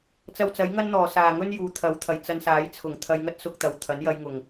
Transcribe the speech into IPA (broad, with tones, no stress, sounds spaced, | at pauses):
t͡s ɐ˧ w t͡s ɐ˨˥ j ŋ ɐ˥ n n̪ ɔː˨˩ s aː˨˩ ŋ ɵ˥ n j uː˨ t̪ʰ ɐ˨˥ w t̪ʰ ɐ˨˩ j t͡s ɐ˧ n s aː˨˥ j t͡sʰ ʊ˨˩ ŋ t̪ʰ ɐ˧ j ŋ ɐ˥ t̚ s ʊ˧ k̚ t̪ ɐ˨˩ w t̪ʰ ɐ˨˥ n j ɐ˧ j ŋ ʊ˨˩ ŋ